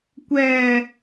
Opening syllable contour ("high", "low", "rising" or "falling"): low